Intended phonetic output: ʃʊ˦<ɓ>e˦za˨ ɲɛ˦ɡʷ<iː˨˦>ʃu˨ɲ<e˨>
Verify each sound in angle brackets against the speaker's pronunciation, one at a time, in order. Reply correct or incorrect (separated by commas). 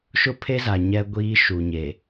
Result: incorrect, incorrect, correct